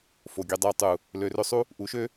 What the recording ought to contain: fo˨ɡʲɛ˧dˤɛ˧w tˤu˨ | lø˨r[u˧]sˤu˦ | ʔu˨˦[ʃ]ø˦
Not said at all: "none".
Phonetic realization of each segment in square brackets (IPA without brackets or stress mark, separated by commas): ø˧, ʃ